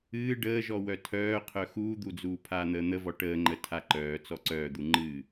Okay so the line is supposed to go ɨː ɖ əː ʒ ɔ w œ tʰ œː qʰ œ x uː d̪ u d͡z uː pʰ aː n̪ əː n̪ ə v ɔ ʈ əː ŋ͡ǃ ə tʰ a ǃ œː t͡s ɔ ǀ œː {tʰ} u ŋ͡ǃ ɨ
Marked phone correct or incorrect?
incorrect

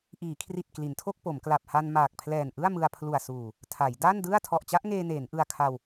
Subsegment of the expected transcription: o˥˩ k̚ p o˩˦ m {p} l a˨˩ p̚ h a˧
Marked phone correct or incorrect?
incorrect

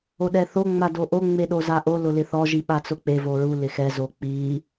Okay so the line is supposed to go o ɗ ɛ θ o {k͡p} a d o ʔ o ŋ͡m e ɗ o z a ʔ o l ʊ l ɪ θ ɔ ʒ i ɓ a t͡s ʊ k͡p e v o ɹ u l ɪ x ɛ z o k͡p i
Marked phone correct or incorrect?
incorrect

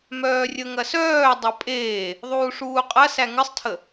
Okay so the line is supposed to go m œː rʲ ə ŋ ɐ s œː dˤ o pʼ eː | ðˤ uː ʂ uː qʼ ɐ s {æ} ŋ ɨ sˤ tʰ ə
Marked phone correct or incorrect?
correct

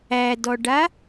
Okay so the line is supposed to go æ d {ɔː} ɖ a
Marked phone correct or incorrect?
incorrect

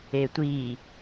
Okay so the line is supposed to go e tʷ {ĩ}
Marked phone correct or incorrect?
incorrect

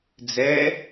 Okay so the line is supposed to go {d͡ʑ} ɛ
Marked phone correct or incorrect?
incorrect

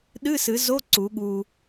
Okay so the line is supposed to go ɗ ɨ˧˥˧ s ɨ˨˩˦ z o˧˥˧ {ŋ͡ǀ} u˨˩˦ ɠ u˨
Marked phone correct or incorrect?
incorrect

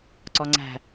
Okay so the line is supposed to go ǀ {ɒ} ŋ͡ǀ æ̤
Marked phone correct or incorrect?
correct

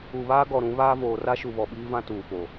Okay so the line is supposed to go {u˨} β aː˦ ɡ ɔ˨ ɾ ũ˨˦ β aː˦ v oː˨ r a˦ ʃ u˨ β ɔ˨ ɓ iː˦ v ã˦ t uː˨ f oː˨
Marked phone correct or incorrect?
correct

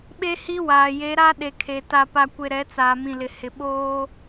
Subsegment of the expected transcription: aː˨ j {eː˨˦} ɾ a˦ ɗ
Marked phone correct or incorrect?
incorrect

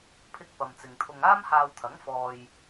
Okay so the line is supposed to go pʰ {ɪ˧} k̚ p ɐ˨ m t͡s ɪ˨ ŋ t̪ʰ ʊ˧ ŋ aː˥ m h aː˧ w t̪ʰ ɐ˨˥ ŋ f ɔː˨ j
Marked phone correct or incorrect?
correct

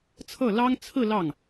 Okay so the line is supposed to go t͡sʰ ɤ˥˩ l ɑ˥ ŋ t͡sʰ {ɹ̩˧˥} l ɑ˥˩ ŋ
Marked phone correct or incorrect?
incorrect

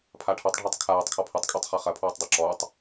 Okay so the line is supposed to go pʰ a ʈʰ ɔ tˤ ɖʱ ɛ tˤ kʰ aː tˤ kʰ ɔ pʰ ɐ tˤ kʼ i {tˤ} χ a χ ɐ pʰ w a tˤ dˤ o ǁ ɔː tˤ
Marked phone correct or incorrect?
correct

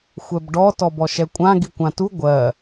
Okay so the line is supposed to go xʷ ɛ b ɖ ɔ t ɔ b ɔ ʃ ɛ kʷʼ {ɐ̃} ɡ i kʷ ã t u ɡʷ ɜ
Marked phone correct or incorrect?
incorrect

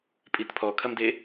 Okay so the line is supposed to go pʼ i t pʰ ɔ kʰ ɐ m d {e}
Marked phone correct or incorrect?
correct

